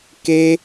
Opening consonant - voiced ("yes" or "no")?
no